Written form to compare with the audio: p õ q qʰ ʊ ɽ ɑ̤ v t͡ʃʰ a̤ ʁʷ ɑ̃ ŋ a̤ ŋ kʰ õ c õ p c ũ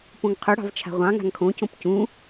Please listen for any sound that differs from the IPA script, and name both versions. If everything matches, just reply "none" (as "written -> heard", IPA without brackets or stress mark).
q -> ŋ